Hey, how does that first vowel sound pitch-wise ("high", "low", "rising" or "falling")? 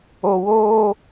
low